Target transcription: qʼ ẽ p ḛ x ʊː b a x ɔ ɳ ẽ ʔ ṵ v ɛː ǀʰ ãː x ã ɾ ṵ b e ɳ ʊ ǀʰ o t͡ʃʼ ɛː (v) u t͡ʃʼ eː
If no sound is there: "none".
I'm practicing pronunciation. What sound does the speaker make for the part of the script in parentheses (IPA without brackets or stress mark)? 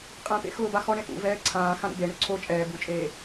b